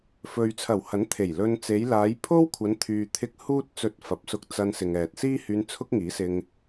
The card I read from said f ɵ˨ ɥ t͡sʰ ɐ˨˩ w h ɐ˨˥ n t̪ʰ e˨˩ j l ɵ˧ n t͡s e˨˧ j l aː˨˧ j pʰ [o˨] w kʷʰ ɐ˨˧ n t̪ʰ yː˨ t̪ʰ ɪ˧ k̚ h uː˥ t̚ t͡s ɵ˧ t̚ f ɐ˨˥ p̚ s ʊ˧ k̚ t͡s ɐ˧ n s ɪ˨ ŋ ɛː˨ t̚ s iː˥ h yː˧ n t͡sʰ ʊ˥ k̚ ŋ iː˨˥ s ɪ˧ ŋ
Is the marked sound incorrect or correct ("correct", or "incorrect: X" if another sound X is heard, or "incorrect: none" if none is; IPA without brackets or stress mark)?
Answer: incorrect: o˥